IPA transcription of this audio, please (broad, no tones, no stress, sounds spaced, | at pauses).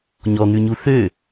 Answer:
ɲ ɔ n̪ ʉ ɲ u θ ø